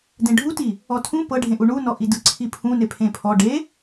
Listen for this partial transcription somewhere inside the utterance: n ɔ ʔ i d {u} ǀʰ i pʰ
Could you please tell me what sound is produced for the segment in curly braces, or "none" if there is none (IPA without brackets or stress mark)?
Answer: ɯ